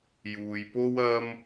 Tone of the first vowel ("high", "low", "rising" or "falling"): low